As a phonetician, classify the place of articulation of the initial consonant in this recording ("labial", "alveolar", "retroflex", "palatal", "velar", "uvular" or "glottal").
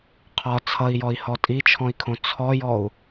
uvular